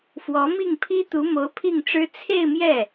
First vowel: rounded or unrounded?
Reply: rounded